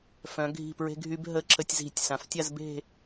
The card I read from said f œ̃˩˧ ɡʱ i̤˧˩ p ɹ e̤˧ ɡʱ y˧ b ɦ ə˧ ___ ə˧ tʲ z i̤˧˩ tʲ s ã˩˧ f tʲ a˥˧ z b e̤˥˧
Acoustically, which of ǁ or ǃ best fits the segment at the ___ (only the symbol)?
ǁ